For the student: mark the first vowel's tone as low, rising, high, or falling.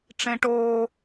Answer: high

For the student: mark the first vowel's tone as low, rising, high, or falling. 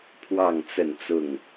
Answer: falling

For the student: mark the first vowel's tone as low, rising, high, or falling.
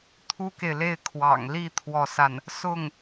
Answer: high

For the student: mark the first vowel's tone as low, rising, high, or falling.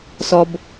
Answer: high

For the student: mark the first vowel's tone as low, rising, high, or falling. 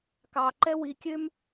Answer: low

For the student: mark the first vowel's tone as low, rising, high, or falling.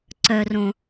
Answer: low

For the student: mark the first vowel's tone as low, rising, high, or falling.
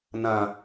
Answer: low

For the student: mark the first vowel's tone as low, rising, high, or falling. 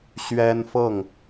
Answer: high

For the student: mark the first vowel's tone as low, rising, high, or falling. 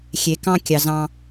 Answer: low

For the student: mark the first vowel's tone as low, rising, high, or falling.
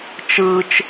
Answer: high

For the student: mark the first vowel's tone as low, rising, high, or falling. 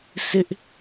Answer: high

